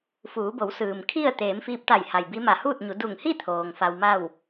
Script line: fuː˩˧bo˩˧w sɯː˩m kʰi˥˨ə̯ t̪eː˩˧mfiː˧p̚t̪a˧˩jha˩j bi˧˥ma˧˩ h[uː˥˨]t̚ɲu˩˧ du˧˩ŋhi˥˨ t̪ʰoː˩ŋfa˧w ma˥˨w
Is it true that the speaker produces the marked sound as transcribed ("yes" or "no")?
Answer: yes